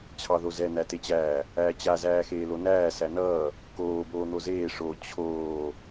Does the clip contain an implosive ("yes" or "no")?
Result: no